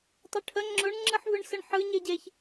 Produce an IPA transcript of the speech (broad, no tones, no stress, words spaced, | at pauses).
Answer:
tˤʊʈʰə ŋ͡ǁʊɳ ŋ͡ǁɯħvɯɳsəɳħɯ ɲeɟeç